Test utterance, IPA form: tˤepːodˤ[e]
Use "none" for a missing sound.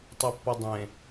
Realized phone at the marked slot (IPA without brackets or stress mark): ẽ